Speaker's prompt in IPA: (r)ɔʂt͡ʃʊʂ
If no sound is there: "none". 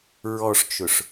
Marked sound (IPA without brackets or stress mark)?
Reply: ɹ